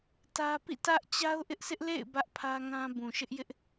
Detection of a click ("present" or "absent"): absent